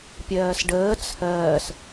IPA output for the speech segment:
pʲɜːsɖəː t͡sʰɜːs

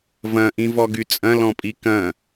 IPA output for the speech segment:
vɐ̃ʔĩvɔ ɡyt͡sʼɐ̃lɔ̃pʼi kɐ̃

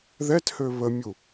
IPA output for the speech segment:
ðɛthø βəmʲu

